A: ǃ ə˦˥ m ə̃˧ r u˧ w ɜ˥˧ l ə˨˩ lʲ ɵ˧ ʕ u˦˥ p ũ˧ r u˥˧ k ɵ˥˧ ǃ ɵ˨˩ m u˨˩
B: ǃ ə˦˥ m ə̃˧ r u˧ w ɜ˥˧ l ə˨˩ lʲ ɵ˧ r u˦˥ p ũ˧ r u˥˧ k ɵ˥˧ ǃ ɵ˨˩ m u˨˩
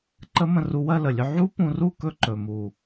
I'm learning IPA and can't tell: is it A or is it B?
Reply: A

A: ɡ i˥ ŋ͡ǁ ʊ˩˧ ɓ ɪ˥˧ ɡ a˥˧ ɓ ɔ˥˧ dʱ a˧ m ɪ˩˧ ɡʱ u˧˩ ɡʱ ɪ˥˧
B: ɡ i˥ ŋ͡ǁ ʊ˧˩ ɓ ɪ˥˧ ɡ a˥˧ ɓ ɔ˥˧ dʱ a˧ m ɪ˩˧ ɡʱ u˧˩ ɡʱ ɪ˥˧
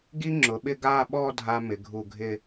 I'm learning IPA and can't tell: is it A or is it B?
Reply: A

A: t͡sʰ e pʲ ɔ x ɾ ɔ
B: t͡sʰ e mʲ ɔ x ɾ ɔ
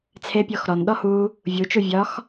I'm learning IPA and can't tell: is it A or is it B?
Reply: A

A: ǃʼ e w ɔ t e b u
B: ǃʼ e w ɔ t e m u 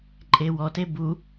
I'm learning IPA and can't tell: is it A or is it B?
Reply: A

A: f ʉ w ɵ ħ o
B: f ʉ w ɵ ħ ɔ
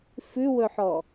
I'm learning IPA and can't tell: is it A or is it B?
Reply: B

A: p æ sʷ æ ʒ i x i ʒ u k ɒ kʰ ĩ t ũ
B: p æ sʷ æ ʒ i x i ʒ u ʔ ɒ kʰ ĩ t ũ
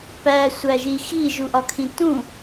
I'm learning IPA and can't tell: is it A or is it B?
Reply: B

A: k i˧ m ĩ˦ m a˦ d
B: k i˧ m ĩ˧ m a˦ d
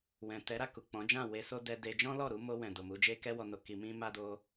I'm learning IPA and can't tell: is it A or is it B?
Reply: A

